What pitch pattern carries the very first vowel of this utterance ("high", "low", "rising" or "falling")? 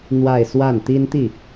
falling